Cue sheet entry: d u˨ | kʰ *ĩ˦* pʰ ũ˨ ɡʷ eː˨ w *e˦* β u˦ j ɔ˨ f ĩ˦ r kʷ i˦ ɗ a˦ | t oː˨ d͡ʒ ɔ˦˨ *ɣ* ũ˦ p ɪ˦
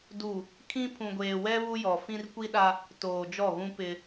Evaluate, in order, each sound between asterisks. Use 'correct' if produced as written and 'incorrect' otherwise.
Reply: correct, incorrect: ɛ˦, correct

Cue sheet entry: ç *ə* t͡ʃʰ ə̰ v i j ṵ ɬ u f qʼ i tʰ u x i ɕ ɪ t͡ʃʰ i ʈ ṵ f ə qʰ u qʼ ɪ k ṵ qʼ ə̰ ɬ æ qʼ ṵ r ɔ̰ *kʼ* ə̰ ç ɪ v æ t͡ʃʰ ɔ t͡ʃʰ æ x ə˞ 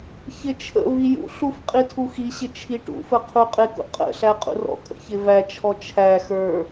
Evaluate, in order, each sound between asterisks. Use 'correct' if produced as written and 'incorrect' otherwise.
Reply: incorrect: ɪ, correct

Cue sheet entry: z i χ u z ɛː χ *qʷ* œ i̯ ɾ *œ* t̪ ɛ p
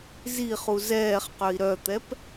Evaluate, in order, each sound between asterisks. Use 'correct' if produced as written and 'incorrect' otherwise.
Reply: incorrect: q, correct

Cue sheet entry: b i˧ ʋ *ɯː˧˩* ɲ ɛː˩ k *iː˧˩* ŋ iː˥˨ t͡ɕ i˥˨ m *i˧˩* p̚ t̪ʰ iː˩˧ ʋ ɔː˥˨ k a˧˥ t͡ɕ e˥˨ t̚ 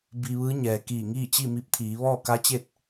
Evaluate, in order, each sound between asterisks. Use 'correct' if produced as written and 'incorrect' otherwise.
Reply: incorrect: ɯː˧˥, correct, incorrect: i˧

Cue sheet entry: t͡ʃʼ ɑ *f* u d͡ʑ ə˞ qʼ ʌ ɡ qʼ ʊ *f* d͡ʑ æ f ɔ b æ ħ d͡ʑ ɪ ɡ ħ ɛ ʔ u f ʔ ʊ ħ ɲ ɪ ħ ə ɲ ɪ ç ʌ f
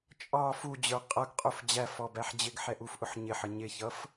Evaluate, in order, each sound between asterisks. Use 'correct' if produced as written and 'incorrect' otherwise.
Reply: correct, correct

